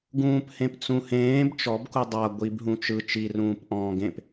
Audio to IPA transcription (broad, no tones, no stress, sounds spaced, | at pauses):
ɡ ũː p h ẽ p t͡s ũ h ẽː b t͡ʃ ɔ b k u dˤ a ɡʷ i b ɦ ũ t͡ʃ ɯ t͡ʃ i r ũː p ʔ ɔ̃ː ɡ ẽ p